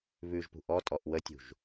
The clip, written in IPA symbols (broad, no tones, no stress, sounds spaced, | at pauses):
β ʉ ʒ p ṳ ʔ ɔ tʼ ɔ ʔ w ə tʲ ṳ ʒ